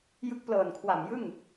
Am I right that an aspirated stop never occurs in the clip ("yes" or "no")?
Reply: no